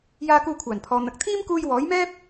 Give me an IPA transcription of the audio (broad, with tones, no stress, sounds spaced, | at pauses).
j aː˧ k uː˧ kʷʰ aː˨˩ n pʰ ɔː˨ n̪ ɐ˨ k̚ t̪ʰ iː˥ m k uː˧ j w ɔː˨˥ j m ɛː˥ p̚